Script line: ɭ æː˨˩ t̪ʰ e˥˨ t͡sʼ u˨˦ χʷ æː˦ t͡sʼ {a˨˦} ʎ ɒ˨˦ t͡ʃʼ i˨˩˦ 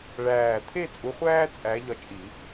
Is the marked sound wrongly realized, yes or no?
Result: yes